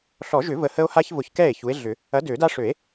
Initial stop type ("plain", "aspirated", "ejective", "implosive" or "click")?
plain